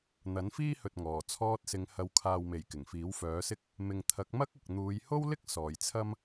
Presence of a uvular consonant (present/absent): absent